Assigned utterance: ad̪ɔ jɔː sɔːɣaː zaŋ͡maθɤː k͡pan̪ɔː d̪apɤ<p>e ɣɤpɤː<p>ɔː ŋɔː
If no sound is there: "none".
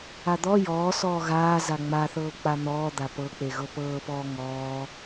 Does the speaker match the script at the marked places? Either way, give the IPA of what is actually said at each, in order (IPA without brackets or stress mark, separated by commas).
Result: k͡p, p